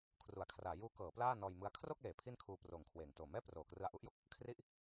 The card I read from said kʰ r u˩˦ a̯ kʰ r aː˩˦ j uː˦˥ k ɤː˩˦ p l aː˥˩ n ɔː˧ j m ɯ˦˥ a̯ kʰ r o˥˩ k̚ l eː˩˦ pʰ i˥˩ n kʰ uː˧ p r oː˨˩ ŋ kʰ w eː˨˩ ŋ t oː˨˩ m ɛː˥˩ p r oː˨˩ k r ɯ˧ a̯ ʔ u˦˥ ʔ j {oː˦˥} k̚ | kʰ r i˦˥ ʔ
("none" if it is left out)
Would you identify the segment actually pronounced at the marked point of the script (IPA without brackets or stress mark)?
o˦˥